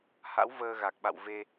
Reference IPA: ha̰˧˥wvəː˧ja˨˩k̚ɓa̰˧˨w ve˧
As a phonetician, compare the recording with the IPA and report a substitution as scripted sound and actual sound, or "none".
j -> ɣ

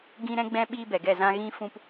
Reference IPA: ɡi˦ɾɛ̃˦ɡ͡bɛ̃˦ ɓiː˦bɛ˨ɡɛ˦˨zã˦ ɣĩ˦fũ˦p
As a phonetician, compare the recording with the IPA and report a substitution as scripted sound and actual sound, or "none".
i˦ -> ĩ˦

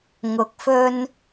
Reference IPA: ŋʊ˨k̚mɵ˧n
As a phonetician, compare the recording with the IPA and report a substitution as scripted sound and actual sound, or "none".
m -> f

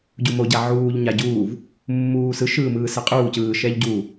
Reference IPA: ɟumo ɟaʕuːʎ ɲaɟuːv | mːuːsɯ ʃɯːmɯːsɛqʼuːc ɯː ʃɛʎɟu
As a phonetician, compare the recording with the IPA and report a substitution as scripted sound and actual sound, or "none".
none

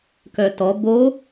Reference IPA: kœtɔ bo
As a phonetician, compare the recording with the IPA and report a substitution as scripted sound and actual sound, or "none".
none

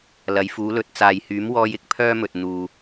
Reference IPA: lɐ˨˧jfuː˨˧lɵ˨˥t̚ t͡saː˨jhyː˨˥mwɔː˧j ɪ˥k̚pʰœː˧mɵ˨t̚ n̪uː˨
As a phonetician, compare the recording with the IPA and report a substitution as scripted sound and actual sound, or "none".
none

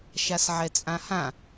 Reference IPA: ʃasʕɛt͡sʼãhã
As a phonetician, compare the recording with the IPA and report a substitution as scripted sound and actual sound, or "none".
none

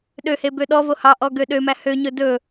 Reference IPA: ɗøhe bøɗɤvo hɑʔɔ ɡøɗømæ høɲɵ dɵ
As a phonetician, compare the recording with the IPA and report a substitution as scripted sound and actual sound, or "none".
ɤ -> ɔ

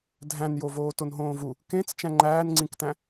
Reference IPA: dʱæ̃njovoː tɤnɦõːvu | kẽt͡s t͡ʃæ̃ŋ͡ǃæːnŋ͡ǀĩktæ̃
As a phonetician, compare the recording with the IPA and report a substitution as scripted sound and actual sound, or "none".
ɤ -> o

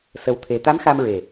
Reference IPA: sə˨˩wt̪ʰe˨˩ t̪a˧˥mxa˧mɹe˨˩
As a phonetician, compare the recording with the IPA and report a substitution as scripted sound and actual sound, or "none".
none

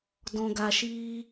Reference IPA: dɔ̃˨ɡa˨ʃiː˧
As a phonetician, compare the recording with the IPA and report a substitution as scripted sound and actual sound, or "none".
none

